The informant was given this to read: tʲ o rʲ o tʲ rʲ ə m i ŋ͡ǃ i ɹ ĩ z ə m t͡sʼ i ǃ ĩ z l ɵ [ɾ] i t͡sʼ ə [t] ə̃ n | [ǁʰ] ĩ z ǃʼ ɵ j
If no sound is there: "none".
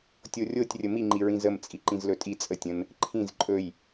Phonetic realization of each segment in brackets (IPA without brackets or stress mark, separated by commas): tʼ, tʲ, ǃʰ